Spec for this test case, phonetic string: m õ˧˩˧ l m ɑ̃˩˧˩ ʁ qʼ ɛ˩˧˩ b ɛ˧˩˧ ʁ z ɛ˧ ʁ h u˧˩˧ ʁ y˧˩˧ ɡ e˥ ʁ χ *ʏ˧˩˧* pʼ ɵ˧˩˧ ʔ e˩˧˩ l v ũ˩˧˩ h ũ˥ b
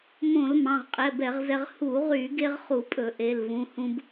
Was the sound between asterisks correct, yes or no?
no